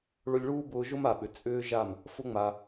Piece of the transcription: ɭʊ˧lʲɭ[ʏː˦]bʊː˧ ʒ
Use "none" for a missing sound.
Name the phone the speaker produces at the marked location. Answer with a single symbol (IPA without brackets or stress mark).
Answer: uː˦